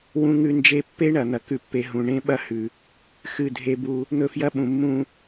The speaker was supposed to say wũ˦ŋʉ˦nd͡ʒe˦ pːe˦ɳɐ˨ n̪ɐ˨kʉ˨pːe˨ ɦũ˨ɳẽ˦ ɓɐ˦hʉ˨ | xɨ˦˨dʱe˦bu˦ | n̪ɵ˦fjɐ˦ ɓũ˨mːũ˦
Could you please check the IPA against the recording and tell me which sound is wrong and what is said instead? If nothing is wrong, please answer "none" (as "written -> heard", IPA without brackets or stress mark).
none